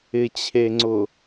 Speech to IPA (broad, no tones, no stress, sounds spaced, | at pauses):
ɪ t͡ɕʰ e ŋ͡ǀ ʊ